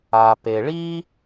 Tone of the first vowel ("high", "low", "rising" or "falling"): low